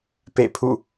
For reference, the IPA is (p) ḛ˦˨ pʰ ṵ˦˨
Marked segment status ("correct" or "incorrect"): correct